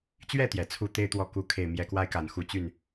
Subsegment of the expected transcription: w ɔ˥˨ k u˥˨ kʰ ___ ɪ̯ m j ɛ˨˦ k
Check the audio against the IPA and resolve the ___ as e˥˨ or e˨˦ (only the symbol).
e˥˨